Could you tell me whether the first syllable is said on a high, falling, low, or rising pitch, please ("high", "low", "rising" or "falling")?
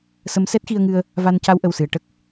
rising